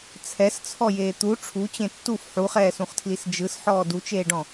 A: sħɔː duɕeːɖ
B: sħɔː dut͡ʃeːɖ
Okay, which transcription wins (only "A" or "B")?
B